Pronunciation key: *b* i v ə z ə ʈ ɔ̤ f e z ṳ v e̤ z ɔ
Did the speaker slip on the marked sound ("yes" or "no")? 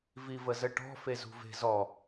yes